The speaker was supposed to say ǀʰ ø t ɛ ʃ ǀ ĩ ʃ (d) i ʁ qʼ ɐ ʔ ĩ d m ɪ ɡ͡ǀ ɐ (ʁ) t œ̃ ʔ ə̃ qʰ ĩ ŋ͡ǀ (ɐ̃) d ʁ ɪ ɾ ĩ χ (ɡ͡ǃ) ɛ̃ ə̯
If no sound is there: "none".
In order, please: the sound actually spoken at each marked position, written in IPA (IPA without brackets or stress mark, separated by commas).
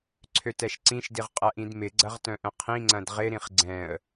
d, ʁ, ɐ̃, ɡ͡ǀ